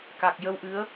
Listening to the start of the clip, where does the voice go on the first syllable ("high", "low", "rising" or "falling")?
low